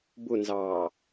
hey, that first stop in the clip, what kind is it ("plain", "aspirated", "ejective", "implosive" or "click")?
plain